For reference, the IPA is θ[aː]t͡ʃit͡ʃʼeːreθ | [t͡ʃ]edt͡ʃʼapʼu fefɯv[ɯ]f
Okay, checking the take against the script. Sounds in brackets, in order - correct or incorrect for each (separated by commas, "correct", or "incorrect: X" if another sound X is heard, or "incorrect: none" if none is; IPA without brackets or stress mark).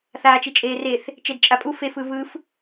correct, correct, correct